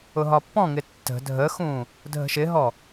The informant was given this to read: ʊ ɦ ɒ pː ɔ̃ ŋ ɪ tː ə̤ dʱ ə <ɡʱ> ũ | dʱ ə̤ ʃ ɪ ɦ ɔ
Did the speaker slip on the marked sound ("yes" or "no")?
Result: yes